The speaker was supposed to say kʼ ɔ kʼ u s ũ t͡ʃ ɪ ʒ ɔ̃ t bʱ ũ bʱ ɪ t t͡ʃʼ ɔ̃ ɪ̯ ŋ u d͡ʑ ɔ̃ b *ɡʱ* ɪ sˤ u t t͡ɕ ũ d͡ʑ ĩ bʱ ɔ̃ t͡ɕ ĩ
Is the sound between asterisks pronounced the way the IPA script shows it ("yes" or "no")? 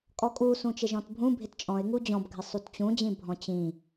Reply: yes